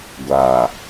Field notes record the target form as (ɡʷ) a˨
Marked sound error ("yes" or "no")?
no